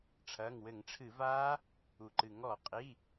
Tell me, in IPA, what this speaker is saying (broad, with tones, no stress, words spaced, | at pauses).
ʈ͡ʂʰɐː˩˧˩ŋwɘ˧˩˧ŋʈ͡ʂʰɨ˧˩˧vaː˦˥ | u˩ǃɨ˩ ŋɔ˧˩˧qʼi˩˧˩